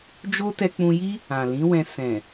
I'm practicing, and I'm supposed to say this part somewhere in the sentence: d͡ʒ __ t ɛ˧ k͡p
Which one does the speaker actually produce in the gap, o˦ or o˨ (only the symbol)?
o˦